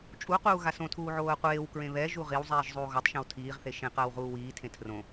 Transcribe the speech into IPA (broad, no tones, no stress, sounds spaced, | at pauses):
t͡ʃʼ u q uː ɣ a s õ tʰ uː ʕ oː ə̯ qʷ eː w k ɹ ẽ β ɛ ʒ u ʁ i w zˤ iː ʒ zˤ uː ɣ ɔ tˤ ʃ ɛ̃ w tʰ iː ʁ θ e ʃ ẽ q ɐː w ʁ uː w iː tʰ ẽ tʰ r õ